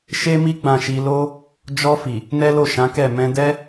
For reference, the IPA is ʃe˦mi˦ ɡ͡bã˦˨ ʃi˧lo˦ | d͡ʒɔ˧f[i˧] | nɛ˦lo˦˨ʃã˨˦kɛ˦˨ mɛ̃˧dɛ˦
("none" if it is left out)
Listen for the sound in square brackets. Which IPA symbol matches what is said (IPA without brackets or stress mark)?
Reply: i˨